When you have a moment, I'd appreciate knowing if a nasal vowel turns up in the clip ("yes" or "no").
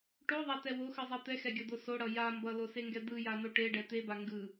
no